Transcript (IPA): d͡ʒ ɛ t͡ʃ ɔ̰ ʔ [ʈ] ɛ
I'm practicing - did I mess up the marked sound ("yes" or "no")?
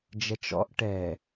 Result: no